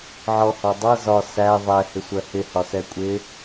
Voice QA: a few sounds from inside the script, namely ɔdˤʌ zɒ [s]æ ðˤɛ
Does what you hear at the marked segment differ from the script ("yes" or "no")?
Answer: no